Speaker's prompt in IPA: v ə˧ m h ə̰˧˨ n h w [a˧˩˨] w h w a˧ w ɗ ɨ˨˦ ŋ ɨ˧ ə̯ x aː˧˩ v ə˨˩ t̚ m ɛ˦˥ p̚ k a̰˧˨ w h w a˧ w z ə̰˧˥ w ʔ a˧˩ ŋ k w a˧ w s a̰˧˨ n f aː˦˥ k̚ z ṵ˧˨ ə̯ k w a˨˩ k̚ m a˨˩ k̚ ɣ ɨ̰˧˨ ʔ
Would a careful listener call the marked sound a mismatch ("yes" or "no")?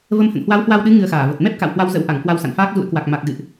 yes